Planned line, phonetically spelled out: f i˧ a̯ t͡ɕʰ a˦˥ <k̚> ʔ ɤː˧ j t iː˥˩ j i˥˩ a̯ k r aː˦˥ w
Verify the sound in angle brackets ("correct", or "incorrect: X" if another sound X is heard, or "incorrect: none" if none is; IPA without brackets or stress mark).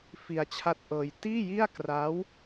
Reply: incorrect: t̚